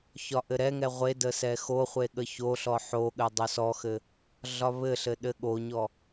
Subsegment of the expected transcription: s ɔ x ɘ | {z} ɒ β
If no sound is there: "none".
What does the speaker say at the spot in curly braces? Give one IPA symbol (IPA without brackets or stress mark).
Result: ɮ